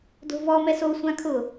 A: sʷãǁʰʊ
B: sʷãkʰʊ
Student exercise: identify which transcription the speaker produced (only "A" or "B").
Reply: B